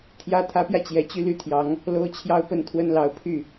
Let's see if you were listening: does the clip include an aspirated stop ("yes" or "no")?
yes